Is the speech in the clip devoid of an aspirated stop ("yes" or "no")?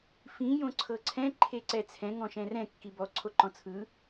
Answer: no